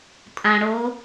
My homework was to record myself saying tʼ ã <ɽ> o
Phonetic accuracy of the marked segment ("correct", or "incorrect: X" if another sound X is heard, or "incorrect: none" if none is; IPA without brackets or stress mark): correct